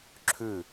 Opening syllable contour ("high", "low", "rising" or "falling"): falling